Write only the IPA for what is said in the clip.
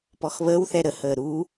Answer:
pɔxβəːwθɛ ɾəhəː ɾu

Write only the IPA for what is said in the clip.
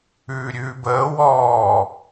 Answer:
ʉːɾʲʉːbəː wɔː

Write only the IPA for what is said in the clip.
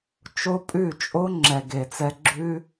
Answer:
t͡ʃo˦pʼʉ˦˨ t͡ʃʼo˦ ŋ͡ǁɛ˧ɡe˧t͡sɛ˦ ɡ͡ǁʉ˦

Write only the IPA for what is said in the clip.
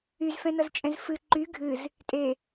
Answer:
yzfɛ̃nʌzt͡ʃʼɛ̃z fɨ ǃy ɡʱɨz | tʼe

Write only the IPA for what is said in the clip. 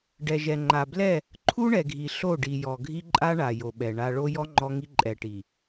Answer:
ɖɛ˨ʒɛ˨ ŋ͡ǃa˨blɛ˦˨ | ǃʰu˦ɳɛ˨ɡʱi˨ ɬo˦˨ɖi˨ jɔ˨ɡʱi˦ǃʼa˦ɳa˨ jo˨ɓɛ˨ ɳa˦ ɭo˦jɔ˦ ŋ͡ǃɔ˦ŋi˦ ǃʼɛ˨ʈi˨

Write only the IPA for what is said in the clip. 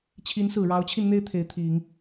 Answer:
t͡ɕʰi˧˥nsɹ̩˨˩ ɻɑ˧˥ʊ̯t͡ɕʰi˧nn̪e˥ɪ̯ t̪ʰe˧˥ɪ̯t̪ʰi˨˩˦ŋ

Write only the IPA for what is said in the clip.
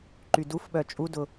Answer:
ǃydufɓœ t͡ʃʼudʊ

